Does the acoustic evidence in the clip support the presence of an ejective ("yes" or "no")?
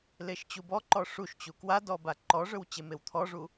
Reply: no